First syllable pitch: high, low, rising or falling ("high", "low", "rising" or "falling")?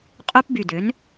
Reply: high